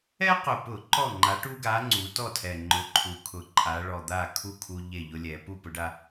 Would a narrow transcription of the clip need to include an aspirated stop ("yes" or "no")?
yes